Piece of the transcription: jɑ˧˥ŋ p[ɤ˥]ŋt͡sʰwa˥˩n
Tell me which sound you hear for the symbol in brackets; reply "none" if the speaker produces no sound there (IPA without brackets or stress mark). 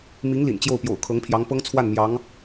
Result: ɤ˥